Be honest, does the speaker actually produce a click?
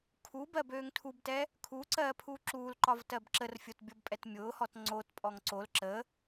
yes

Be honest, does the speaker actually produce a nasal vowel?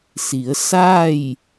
no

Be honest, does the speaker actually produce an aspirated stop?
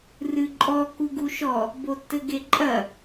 no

